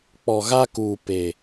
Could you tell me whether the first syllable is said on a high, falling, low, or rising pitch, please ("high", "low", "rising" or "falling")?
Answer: low